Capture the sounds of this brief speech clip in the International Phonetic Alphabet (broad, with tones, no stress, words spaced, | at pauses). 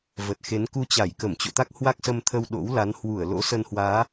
və˨˩t̚xe˨˦n ku˧t͡ɕa˧˩jkə˧˩m t͡ɕo̰˧˨t̪a˦˥k̚ hwa˦˥k̚sə˧mt̪ʰə˧w ɗo̰˧˥wla˨˦n hwu˧˩ə̯ lo̰˧˥sə˧nhwaː˨˦